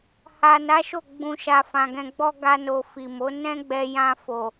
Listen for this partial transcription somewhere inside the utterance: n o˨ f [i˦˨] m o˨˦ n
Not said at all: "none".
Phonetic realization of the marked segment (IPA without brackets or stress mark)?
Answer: i˨